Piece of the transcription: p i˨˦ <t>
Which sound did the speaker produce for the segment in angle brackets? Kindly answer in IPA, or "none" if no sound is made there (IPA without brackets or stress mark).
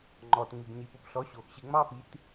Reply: t